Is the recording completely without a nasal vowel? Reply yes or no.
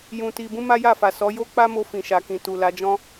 no